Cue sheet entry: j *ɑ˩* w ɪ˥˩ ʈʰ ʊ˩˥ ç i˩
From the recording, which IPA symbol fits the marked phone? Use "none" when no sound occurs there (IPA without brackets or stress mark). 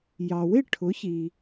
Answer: ɑ˩